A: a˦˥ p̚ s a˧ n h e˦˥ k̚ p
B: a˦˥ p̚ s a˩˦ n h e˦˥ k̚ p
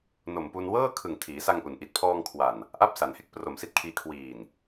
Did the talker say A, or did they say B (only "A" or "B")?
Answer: B